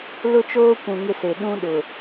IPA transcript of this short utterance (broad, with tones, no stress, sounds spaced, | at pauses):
l ʊ˦ t͡ʃ oː˦ kʷ ũ˨ ŋ ɪ˦ s e˨ ɗ ũ˦ ɗ ʊ˨